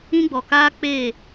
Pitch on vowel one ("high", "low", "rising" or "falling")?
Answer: high